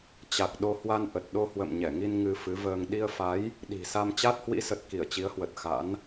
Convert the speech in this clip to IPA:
t͡ɕ a˨˩ k̚ ɗ o˧ h w a˧ n ʔ ə˨˩ t̚ ɗ o˧ h w ə̰˧˨ m ɲ ɛ˧˩ ŋ i˧ n ŋ ɨ˧ f ɨ˨˦ v əː˧ ŋ ɗ i˧ ə̯ f a˨˦ j | ɗ i̤˨˩ s a˧ m t͡ɕ a˦˥ t̚ h w ḭ˧˥ s ə˨˩ t̚ k i˧˩ ə̯ t͡ɕ i˨˦ ə̯ h w ə˨˩ t̚ x a̰˧˥ n

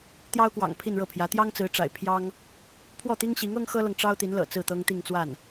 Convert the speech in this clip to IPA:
t̪ j ɑ˥ ʊ̯ k w ɑ̰˨˩ ŋ pʰ i˥˧ n ɻ ɤ˥˩ pʰ j ä˧˥ t̪ j ɑ˥ ŋ t͡s ɹ̩˧˥ ʈ͡ʂ a̰˨˩ ɪ̯ pʰ j ɑ˥ ŋ | pʰ w ɔ˥˩ t̪ i˥ ŋ ɕ i˧˥ ŋ ɤ˥ ŋ x ɤ˥ l ɤ˨ ŋ ʈ͡ʂ ɑ˥ ʊ̯ t̪ i˧˥ n l ɤ̰˨˩ t͡s ɹ̩˥˩ t̪ ɤ˥ ŋ t̪ i˥˧ ŋ t͡s w a˥˩ n

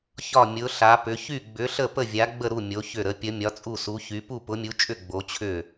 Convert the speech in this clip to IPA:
ç ɒ˥˩ mʲ ʊ˨˥ ɬ a˨˥ p ʏ˨˥ ç y˥˩ ɡ͡b ʏ˨˥ ɬ ə˥˩ p ə˥˩ vʲ a˨˥ ɡ͡b ə˥˩ ɾ u˥˩ mʲ o˨˥ ç ʏ˥˩ ɾ ə˨˥ pʲ ə˨˥ mʲ ɒ˨˥ t͡sʼ u˥˩ s u˨˥ ç y˨˥ p u˥˩ p ʊ˨˥ mʲ u˨˥ t͡ʃʼ ʏ˥˩ ɡ͡b o˨˥ t͡ɕʰ ʏ˥˩

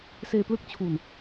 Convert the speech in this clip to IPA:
s eː˧ p l ɯ˥˩ k̚ t͡ɕʰ u˧ n

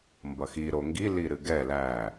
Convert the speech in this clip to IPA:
m b ʌ x i ɾ o ŋ ɡ i l i ɾ ɨ ɡ ɛ l æ

